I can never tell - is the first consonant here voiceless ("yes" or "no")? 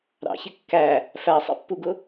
no